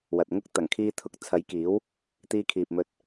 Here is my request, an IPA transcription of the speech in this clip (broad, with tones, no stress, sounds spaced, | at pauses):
w ɐ˨ t̚ ŋ ʊ˥ k̚ t̪ ɐ˨˩ ŋ kʰ iː˧ t̪ʰ ʊ˨˥ k̚ t͡sʰ ɐ˨˥ j k iː˨˥ w | t̪ iː˧ kʰ iː˨ p̚ m ɵ˧ t̚